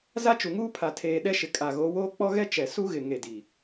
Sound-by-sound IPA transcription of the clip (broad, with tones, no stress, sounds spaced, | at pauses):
z a˦ t͡ʃ u˨ ŋ uː˦ pʰ a˨ tʰ eː˨ ɗ ɛ˦ ʃ ɪ˨ kʼ a˨ ɣ o˨˦ w oː˦ k͡p ɔ˦ ɣ ɛ˦ t͡ʃ ɛ˨ s u˦ ɣ ɪ˨ ŋ e˨ d i˨